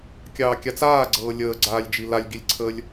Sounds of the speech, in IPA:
kʲɑːkʲat͡saːɡ͡ǀɤː lʲəːɡ͡ǀaːlʲd͡ʒi lalʲɡilʲǀʰəːlʲ

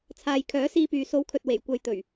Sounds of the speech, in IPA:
t͡sʰaː˨j kʰœː˨˥siː˧pyː˨ so˨˥wkʰɵ˨t̚ we˨˩jkʷɐ˨˧j t̪ɵ˨˩ɥ

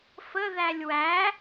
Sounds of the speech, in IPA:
fəðælʲ wæ

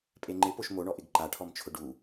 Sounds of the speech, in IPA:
pʼeŋ͡ǃɪ poʃmoɳɔʔɪɡ ǃaʈʰɔmt͡ʃʰʊ ɖu

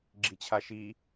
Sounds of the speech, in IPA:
ɡ͡ǁit͡ɕʰaʃi

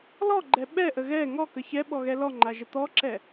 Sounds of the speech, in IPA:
lɔɡ͡ǃɛ ɓɛʔə ɣɛ ŋɔkə çɛɓɔɣɛ lɔŋ͡ǃaʒə t̪ɔǁɛ

